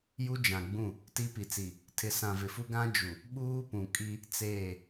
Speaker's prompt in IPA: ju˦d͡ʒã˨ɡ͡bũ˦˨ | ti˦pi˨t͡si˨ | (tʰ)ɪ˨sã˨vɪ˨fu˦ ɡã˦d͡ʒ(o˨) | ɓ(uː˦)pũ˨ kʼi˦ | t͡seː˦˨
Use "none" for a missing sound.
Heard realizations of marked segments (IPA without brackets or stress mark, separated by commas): tʰ, u˨, uː˦